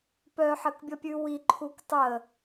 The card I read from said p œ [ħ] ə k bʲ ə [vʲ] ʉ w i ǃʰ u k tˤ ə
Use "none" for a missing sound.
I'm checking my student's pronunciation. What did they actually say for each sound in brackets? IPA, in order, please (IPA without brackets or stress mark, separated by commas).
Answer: ħ, pʲ